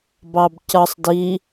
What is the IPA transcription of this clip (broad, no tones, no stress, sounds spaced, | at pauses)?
b ɑ b c ʌ sˤ d i